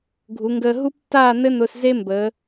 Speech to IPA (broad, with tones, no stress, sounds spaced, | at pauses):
ɡʱ u˩˧ ŋ ɡ əː˧ ɦ u˥ p tː aː˥˧ n̪ ɘ˥ n̪ ʊ˧ s z e˥ m b əː˩˧